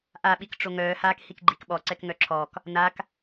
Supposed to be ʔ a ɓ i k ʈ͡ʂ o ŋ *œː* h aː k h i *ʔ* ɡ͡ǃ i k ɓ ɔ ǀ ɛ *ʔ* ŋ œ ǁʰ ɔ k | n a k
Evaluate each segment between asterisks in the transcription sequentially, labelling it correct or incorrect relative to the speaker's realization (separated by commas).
correct, incorrect, incorrect